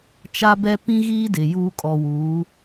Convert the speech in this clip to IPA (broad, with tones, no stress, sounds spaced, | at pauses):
t͡ʃ a˦ b ɛ˦ p ĩ˦ ɣ iː˦ d ɪ˨ j uː˦ kʼ ɔ˨ w uː˨˦